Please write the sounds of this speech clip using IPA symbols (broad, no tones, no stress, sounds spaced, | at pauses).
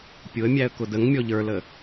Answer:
pʲ ʊ ə̯ mʲ æ ə̯ k ʊ d ə ŋ mʲ ɔ ʎ ə˞ l ə